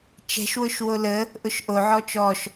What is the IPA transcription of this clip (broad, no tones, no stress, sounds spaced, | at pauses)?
t͡ʃ ɛ̤ ʃ w ʊ ʃ w o l ə | ʔ ʊ ʃ ʔ o ʕ ɔ t͡ʃ ɔ ʃ